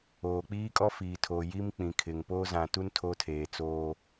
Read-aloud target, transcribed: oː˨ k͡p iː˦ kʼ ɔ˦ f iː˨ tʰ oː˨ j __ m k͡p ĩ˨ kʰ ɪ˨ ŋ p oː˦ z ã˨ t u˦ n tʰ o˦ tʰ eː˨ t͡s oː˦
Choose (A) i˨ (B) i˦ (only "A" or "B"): B